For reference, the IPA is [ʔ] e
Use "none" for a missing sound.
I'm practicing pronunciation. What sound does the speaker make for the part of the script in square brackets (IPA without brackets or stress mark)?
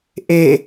ʔ